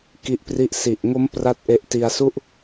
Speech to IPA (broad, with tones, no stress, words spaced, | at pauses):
ki˦˥ʔpri˥˩ʔ si˨˩ʔŋo˦˥m pra˥˩t̚ʔe˦˥ʔ ti˧a̯su˥˩ʔ